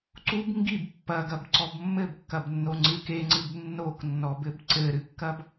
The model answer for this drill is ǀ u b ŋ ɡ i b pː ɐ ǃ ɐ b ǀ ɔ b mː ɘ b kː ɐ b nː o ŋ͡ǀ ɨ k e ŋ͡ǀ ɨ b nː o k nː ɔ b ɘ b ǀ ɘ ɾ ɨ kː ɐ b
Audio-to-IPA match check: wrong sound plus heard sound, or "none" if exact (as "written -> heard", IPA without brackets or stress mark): ǃ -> ɡ